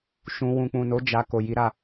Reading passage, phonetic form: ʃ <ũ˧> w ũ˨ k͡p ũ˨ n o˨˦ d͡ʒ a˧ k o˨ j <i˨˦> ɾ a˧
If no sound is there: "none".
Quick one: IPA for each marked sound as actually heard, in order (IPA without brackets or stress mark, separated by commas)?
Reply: ũ˧, i˨˦